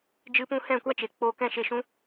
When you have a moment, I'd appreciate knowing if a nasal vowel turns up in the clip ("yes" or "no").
yes